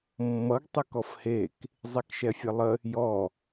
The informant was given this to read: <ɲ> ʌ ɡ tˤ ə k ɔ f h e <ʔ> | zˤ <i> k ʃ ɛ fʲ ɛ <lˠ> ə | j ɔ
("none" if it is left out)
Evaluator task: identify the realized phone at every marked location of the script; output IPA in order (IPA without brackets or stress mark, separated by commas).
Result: mː, k, i, lˠ